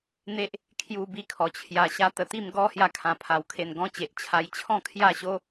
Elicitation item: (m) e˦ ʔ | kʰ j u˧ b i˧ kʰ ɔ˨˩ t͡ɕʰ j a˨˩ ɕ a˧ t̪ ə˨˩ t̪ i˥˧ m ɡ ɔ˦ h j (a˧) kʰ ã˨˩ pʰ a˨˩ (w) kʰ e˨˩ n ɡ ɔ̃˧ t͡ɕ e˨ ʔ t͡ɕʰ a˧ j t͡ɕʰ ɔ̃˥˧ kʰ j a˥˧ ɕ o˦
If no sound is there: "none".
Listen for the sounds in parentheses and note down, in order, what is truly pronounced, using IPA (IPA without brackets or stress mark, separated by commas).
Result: n̪, a˧, w